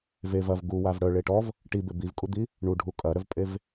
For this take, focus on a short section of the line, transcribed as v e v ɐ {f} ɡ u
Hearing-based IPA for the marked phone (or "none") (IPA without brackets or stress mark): v